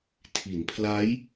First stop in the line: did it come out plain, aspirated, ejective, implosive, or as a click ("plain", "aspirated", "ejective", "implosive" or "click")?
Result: aspirated